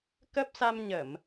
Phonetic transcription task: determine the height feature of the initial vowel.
mid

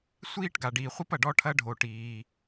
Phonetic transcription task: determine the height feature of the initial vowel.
high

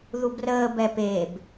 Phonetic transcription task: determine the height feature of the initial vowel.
high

